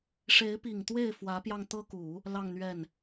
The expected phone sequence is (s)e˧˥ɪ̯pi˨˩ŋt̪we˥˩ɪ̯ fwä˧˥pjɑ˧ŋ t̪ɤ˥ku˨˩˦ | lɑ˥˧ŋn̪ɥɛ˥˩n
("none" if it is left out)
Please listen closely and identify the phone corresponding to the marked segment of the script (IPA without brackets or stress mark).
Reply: ʂ